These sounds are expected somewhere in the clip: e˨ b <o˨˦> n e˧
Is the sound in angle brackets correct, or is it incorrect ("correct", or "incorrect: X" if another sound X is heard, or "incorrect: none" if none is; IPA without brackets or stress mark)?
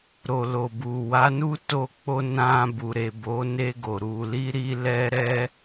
correct